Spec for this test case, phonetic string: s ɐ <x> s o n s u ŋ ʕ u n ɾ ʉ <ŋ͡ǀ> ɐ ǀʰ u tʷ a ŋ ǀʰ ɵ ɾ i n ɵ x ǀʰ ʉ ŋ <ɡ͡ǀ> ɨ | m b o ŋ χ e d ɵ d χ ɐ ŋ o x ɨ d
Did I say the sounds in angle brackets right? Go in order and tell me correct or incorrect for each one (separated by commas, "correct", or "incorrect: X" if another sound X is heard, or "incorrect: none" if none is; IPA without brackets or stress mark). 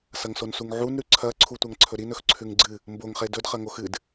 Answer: incorrect: ŋ, incorrect: ǀʰ, correct